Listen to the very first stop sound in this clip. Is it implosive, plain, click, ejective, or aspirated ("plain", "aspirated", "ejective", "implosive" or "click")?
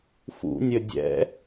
plain